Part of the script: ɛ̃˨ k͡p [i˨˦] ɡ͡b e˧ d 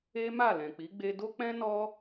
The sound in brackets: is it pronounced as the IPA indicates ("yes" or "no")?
yes